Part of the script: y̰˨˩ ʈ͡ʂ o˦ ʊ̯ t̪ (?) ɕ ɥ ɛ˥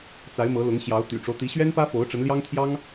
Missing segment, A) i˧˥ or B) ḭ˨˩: A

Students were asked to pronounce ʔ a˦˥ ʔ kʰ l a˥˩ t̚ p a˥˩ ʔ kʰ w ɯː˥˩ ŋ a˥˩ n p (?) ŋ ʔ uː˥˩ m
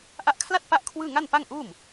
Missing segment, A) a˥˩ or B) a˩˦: A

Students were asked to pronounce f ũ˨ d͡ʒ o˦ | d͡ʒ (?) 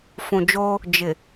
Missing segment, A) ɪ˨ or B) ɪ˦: A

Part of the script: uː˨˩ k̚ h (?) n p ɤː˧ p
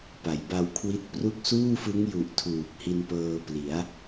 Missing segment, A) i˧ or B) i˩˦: A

